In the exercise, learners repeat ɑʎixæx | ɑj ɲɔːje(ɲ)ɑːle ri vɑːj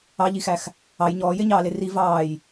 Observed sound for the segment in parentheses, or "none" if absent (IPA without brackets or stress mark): ɲ